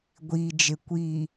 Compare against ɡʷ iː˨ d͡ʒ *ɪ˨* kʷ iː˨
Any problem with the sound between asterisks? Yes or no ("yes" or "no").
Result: no